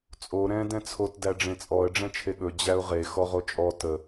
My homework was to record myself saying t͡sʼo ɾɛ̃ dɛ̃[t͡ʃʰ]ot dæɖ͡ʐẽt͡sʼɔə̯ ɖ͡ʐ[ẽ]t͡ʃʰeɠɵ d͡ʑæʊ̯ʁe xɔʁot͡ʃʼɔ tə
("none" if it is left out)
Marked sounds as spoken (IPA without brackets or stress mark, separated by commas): t͡sʰ, ɛ̃